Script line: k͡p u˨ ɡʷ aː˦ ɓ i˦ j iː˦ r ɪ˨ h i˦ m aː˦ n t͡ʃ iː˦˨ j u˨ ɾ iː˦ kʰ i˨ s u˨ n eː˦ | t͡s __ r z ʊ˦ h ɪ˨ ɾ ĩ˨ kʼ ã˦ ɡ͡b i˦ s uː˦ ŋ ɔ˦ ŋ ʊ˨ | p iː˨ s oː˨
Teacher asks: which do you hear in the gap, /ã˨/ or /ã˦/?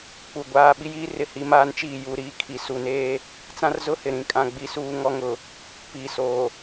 ã˦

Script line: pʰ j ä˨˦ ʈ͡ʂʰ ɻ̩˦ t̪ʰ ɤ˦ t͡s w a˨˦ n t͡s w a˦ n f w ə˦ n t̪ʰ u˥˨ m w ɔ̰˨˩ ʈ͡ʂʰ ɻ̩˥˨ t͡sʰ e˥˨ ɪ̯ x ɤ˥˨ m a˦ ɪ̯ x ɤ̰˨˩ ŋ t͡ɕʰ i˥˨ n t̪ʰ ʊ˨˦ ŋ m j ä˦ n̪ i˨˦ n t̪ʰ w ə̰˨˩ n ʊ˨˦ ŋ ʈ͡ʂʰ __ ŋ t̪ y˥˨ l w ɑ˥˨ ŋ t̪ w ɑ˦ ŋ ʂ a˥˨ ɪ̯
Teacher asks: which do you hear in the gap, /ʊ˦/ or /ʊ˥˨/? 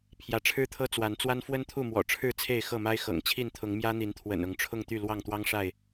ʊ˥˨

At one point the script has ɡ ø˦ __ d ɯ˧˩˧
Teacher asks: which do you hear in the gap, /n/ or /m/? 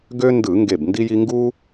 n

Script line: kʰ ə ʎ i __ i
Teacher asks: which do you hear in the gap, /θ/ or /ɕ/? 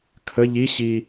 ɕ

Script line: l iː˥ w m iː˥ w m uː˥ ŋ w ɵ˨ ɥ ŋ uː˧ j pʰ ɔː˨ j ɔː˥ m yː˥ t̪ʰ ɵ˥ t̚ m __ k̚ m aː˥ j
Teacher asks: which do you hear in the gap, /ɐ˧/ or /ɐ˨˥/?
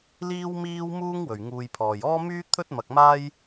ɐ˧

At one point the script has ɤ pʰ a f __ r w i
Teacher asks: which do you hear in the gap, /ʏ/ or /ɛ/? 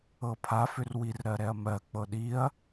ʏ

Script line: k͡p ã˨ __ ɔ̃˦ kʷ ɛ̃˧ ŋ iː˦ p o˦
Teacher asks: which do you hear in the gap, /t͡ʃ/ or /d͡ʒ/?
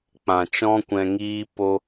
t͡ʃ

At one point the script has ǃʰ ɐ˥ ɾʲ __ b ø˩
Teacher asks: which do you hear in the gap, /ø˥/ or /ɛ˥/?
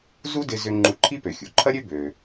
ø˥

